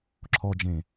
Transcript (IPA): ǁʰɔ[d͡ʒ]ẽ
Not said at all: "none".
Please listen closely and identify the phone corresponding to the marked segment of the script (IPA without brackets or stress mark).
d͡ʒ